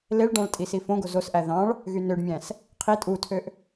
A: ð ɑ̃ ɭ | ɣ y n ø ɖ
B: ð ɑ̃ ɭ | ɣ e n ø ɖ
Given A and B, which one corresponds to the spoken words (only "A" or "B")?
A